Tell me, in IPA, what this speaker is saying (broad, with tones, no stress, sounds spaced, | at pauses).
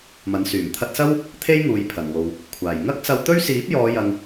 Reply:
m ɐ˨˥ n s yː˨˩ m t̪ʰ ɐ˧ t̚ s ɐ˥ w | t̪ʰ e˥ j ŋ uː˨ j pʰ ɐ˨˩ n w o˨ w | kʷʰ aː˨˩ j ŋ ɐ˥ k̚ s ɐ˧ w t̪ ɵ˥ ɥ s iː˨˥ p̚ j ɔː˨˧ j ɐ˨ ŋ